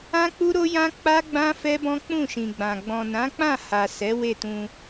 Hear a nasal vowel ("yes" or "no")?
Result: yes